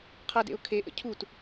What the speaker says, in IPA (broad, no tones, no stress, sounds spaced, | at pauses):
qʰ ʌ d ḛ ʊ̯ kʰ e ʔ ə̰ cʰ u t